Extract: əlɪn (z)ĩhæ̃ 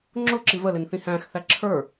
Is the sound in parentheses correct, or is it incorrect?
incorrect